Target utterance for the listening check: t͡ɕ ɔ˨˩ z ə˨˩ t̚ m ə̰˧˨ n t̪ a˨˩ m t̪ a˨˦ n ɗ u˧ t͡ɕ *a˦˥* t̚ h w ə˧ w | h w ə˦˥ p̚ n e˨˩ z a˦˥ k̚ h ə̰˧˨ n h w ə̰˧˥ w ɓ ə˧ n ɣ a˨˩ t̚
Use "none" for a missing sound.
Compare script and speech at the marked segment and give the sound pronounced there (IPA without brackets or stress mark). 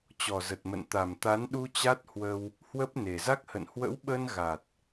a˦˥